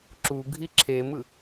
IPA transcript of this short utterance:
ǁ u ɡʱ i ǁʰ e m ɯ

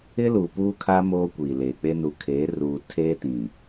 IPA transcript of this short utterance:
ɪ˦ l u˨ p uː˦ kʰ a˦ m oː˦ kʷ iː˨ l eː˨ k͡p e˦ n u˨ kʰ eː˨˦ r uː˨ tʰ eː˦ t ĩ˨

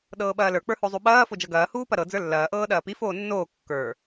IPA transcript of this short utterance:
ɗ ɤː ɓ ɐː l ə˞ k͡p ə˞ h o zˤ u ɓ ɐː f o d͡ʒ ɤ ɡ ɐː h uː p ɐ ɾ ɤ d͡z ə˞ lː ɐː ʔ ɤː ɗ ɐː p i f oː nː oː kː ə˞

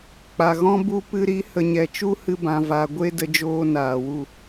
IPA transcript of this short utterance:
k͡p a˨ ɣ ɔ̃˦ b u˦ p ɨ˧ ɾ i˨˦ h ə˨ ɲ ɛ˨ t͡ʃ u˦ h ɨ˧ b ã˨ v a˨ ɡʷ e˦ d ə˦ d͡ʒ oː˦ n aː˨ w u˦˨

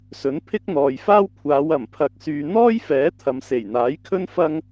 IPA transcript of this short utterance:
s ɵ˨˥ n pʰ ɪ˥ k̚ n̪ ɔː˨ j f aː˥ w kʷʰ aː˨˧ w ɐ˨˩ m pʰ ɐ˨ k̚ s yː˨ n̪ ɔː˥ j f ɛː˨˥ t̪ʰ ɐ˨ m s e˨˩ j n̪ aː˨˥ j kʰ ɵ˥ n f ɐ˥ ŋ

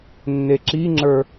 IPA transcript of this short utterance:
nː e ǁ i ŋ͡ǁ ə˞

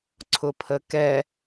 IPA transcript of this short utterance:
ǀʰ ʊ pʰ ə k ɛ

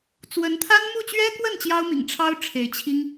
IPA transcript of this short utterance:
t͡s w ə˧˥ n t̪ʰ a˥ n m u˥˩ t͡ɕ ɥ ɛ˥ k w ə˥˩ n t͡ɕ j ɑ˥ ʊ̯ m ḭ˨˩ ŋ ʈ͡ʂʰ ɑ˥ ʊ̯ ʈ͡ʂʰ e˧˥ ɪ̯ t͡ɕʰ i˥ ŋ

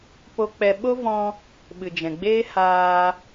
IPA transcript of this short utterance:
p o˧ k͡p ɛ˧ ɓ o˦ v ɔ̃˧ | ɓ ɨ˨ d͡ʒ ɛ̃˨ ɡ͡b eː˦ h aː˧

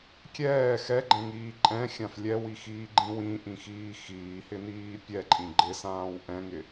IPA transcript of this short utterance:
kʲ ɛː x ɛ ɡ͡ǃ ɛ̃ ŋ iː ǃʼ ɛ̃ xʲ ã f lʲ ɛ w i x iː ɡ͡ǃ ĩ w ĩ ʔ ĩ x iː x iː h ɪ n iː pʲ ɛ ǃʼ ĩ ɡ͡ǃ ɪ s ãː w ʔ ɛ̃ ŋ ɪ

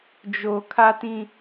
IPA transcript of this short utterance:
d͡ʒ o˨ kʰ a˦ t ĩ˦

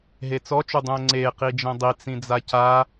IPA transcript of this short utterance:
ɦ e t͡s ɔ t͡ʃ u dˤ ũ ə̯ ŋ͡ǀ e q i d͡ʒ ɛ̃ dˤ i t͡s ĩ d͡z a c a

